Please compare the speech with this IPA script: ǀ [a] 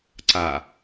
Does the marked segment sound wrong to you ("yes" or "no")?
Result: no